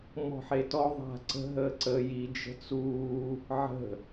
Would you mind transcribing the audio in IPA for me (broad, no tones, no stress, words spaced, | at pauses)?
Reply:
mɔ̤ħetɔ ðˤa̤ ǀə̤ ɦəːǀəːji d͡ʒə̤t͡suː | ʕə̤